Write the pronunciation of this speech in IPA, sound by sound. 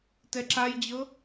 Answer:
t ɛ ǁ a j d͡ʑ ɤ

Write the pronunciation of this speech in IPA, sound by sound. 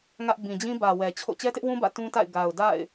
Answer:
ŋ ä˦ ʔ b ĩ˨ d͡ʑ ĩ˦ b ä˨ w ɛ˨ t͡ɕʰ o̰˦˨ t͡ɕ ɛ˦ t ɪ˦ ʔ w ũ˦ b ä̰˦˨ t ũ˦ t a̰˦˨ ɪ̯ ɡ a˨ ʊ̯ d a̰˦˨ ɪ̯

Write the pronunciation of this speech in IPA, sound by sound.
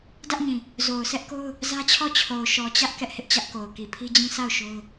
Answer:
d ä˦ ʔ ɲ ĩ˨ | z o˨ ʊ̯ sʰ ɛ˦ ʔ k o˦ ʊ̯ | z ä˦ t͡ɕʰ ɔ˦˨ t͡ɕʰ o˨ ʊ̯ ʃ ɔ˨ t͡ɕ ä˦ ʔ k ɛ˦ ʔ h ɪ˦ ʔ t͡ɕ ä˦ ʔ k o˨ ʊ̯ k i˨ pʰ i˦ d͡ʑ ĩ˦ s a˦˨ ʊ̯ ʃ o˦ ʊ̯

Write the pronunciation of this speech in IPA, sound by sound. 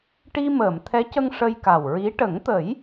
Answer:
ʈ i˧ m əː˨˩˨ m t̪ʰ ɛ˧˥ c ə˧ ŋ ʂ ə˧ j k a˨˩ w ɹ i˧˥ ʈ ə˨˩˦ ŋ t̪ ə˨˩˦ j

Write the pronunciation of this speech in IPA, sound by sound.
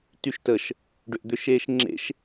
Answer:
t y ʃ t ə ʃ | ɖ ʏ ʔ d̪ ʏ ʃ eː ʃ ŋ͡ǁ ḛ ʃ

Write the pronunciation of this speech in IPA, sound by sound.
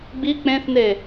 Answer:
ɡ͡b i k͡p ẽ θ n e

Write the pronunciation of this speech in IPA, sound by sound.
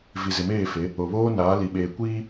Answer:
v i˨ z ɪ˨ m eː˦˨ f e˨˦ | o˨ β oː˦ n aː˨˦ l i˨ ɓ eː˨ kʷ iː˦

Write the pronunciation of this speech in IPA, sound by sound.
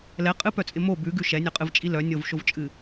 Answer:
l ɛ qʼ ɨ p œ t͡sʼ ɪ m o b ʉ ɡ ʉ ʃ ɛ nʲ œ qʼ ɨ v t͡ʃʼ i l œ nʲ o v ʃ o v t͡ʃʼ ɨ

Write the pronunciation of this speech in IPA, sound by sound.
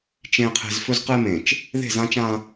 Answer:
t͡ʃ ẽ˨ qʰ e̤˨ z f ɵ˦ z q e˦ m ẽ˨ t͡ʃ | ð e̤˦˨ z ã˦ t͡ʃ ã˦

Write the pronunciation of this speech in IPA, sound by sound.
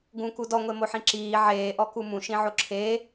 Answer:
ɡ ũ k u d ɔ ŋʷ e m o ħ ĩ ǁ iː ʕ eː ʔ ɔ k u m ũ ʃ ĩ ʕ o ǁʰ eː

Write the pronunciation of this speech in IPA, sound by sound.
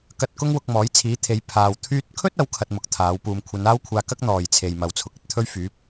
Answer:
k ɐ˧ t̚ k ʊ˥ ŋ w ʊ˧ k̚ m ɔː˨˥ j t͡sʰ iː˨˥ t̪ʰ e˨˧ j pʰ aː˨ w t̪ʰ yː˧ t̚ kʰ ɵ˥ t̚ ɐ˨˥ w kʰ ɐ˧ t̚ m ʊ˨˥ k̚ t̪ʰ aː˨˥ w p uː˧ m kʷʰ ɐ˨˧ n aː˥ w kʷʰ aː˧ k ɐ˥ k̚ n̪ ɔː˨ j t͡sʰ e˨ j m ɐ˨ w t͡sʰ ʊ˨ k̚ ɐ˨ t̚ t̪ʰ ɵ˥ ɥ f yː˨˥ p̚

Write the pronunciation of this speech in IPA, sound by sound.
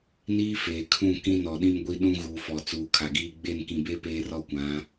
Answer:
n iː˦ f eː˨ kʰ ũ˦˨ k ĩ˦ n ɔ˨ ɗ ĩ˦ m ɡʷ i˦ ɗ ũ˦ ɣ uː˨ f ɔ˨ t͡s uː˨ kʰ a˨ ɡ iː˦ ɡ͡b e˦˨ n k ĩ˨ b e˦ p eː˦ r ɔ˦ kʷ ã˨˦

